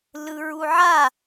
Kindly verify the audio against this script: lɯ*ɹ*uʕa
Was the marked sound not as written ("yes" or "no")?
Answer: no